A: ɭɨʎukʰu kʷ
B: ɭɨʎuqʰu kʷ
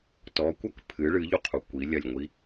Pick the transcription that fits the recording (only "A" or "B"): B